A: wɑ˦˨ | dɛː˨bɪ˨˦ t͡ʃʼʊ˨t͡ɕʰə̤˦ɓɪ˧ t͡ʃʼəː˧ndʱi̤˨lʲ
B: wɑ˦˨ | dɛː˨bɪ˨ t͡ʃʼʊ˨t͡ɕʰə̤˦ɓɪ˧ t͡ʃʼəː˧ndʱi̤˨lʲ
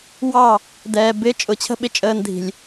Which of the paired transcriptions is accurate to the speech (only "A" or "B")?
A